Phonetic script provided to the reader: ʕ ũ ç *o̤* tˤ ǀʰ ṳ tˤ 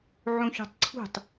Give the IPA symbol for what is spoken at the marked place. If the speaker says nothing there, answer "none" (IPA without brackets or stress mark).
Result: o̤